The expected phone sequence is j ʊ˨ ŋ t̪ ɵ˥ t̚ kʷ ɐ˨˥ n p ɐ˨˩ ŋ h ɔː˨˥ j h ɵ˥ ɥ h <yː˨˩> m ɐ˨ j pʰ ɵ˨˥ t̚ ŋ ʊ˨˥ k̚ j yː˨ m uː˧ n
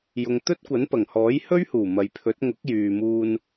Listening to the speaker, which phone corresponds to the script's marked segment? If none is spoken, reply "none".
uː˨˩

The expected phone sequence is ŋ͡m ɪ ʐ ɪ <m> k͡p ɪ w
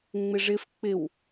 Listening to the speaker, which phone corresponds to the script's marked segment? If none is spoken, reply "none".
f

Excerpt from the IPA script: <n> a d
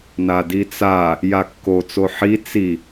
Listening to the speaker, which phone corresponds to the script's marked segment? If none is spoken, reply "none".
n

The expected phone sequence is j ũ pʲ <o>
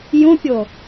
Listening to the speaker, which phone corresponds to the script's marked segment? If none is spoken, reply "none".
o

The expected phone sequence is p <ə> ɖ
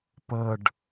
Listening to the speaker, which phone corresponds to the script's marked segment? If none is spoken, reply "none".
ə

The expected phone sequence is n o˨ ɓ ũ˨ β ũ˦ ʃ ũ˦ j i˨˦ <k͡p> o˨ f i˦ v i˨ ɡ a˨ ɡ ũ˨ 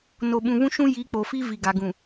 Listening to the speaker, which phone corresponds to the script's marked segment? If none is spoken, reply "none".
k͡p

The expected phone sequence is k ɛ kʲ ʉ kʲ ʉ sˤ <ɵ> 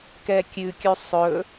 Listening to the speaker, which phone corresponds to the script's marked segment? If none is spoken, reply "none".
ɵ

